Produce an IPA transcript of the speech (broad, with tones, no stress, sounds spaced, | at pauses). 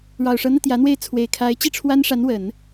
ɻ ɑ˨˩ ʊ̯ ʂ ɤ˧˥ n̪ ä˧ t̪ j ä˧˥ n̪ w e˥˩ ɪ̯ t͡sʰ w e˨˩ ɪ̯ kʰ a˧˥ ɪ̯ t͡ɕ i˥˩ ʈ͡ʂʰ w a˥ n ʂ a˧˥ n w ə˨˩˦ n